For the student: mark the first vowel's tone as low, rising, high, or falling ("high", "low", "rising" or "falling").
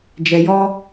low